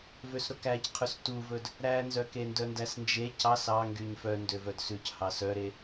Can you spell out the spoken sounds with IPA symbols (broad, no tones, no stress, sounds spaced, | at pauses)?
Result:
v ø s ɾ o k æ c qʰ ɵ s t u v ɵ d | ɾ æ n z œ k e n d œ n d æ s n d͡ʒ e c ɑ s ɑ ŋ ɡ y ɲ f œ n d ø v œ d s ʉ c h ɑ s œ ɾ e